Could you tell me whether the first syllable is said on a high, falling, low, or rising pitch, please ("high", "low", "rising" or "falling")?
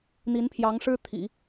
rising